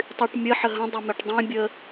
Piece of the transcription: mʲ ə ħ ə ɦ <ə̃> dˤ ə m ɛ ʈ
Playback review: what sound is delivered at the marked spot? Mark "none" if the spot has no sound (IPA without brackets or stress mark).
ə̃